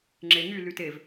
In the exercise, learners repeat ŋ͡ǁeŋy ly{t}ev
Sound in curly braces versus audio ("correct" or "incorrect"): correct